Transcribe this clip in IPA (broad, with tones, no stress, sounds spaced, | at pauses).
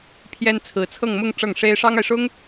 pʰ j ɛ˥ n t͡sʰ ɹ̩˧˥ t͡sʰ ɤ˥˧ ŋ m ʊ˥˧ ŋ ʈ͡ʂ ɤ˥˩ ŋ ʂ e˥ ɪ̯ ʂ ɑ˥ ŋ a˨ ɪ̯ ʂ ʊ˥ ŋ